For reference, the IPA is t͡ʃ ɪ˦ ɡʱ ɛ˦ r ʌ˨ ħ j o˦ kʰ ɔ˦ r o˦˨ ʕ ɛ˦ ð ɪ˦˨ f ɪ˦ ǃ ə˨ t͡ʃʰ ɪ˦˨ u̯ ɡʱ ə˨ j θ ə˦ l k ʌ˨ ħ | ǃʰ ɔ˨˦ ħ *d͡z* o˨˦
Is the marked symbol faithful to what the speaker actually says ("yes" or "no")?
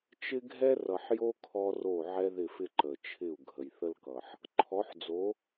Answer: yes